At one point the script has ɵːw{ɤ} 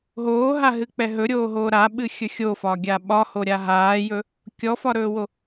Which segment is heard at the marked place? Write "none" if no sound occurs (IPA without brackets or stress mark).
o